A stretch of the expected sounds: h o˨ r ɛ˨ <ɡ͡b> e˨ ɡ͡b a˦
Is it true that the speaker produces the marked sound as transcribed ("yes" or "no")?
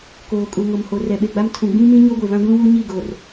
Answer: no